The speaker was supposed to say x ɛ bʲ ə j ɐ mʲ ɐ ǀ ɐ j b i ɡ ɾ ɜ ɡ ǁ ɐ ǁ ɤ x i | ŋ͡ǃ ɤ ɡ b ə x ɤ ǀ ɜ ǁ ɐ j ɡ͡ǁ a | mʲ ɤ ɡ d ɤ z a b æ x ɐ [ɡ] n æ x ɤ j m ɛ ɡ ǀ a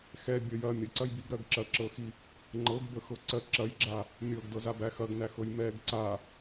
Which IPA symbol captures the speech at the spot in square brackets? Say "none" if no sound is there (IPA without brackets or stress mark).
ɡ